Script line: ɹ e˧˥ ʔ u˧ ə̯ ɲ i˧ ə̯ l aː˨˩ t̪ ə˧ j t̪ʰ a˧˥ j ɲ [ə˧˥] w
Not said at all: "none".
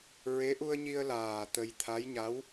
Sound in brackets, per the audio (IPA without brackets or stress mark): a˧˥